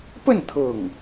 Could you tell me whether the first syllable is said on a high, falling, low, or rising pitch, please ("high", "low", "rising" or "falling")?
falling